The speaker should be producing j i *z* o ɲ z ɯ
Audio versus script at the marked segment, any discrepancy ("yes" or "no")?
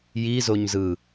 no